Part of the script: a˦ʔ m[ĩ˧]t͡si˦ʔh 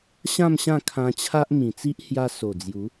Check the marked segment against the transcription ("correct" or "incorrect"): incorrect